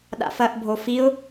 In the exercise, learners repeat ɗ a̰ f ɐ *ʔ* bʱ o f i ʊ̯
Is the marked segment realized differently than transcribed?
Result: no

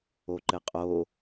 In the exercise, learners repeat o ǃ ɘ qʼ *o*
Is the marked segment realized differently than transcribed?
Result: no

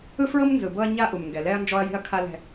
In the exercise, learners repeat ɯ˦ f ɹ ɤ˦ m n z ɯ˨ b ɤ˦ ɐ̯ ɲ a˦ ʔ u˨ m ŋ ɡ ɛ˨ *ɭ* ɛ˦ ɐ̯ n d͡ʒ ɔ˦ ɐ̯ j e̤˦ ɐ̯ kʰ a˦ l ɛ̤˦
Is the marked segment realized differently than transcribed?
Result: yes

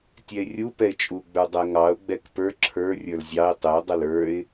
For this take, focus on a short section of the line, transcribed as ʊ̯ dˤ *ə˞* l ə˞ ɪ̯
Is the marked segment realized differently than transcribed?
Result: yes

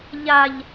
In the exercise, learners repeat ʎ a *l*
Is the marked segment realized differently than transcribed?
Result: yes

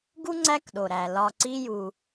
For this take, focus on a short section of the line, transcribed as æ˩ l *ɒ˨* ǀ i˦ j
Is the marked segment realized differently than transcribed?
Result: no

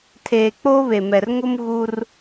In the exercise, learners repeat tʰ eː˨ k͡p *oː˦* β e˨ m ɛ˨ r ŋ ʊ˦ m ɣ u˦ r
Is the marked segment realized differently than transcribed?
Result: no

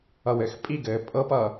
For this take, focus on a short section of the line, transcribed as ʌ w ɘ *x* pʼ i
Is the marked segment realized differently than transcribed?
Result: no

